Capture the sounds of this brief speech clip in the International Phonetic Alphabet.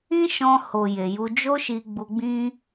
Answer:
ĩ˦ʃɔ̃˧ho˨ je˨ju˧ d͡ʒo˦ʃi˧ ɡ͡bu˧ɡ͡bĩ˦

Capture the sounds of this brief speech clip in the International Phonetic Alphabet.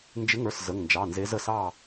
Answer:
nd͡ʒɪ˨˦ŋə˞˩˧˩s zə˩˧˩ŋnd͡ʒɑ˩˧˩nze˨˦z ə˩˧˩sɑ˦˨

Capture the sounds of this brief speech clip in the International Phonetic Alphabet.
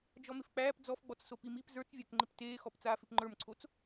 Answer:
d͡ʒɔmɪfk͡pæːp d͡zɔfɡ͡bɔt͡sso pimip zə˞t͡svʲækŋ͡ǃɪp teːxɔp t͡saːfɪpŋ͡ǃə˞mǀʰot͡s

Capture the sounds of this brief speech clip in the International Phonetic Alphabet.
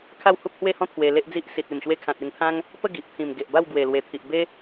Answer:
kʰa˥˧whu˦p̚hwe˥˧hɔ̃˦ t̪ʰwe˧le˦ʔd͡zi˦ʔ si˨t̚ e˨˩mɕwe˧kʰã˨t̚ e˧ŋt̪ʰã˦ŋ | pə˥˧ɡi˨ʔ t̪ʰĩ˨˩m ɡe˨ʔba˥˧w ɡwe˨˩lwe˨˩t̪ʰi˨ʔ be˦

